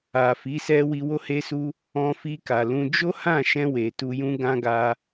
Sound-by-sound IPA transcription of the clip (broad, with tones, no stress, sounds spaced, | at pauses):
a˨ f i˨˦ s ɛ˦ w i˧ w o˦ h e˦ s u˦ | ɔ̃˧ f i˧ k a˨ l ũ˧ d͡ʒ o˦ h ã˦˨ ʃ ɛ̃˧ w e˨ t u˧ j ũ˦ ɡ ã˦ ɡ a˦